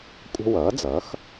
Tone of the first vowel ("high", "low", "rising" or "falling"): high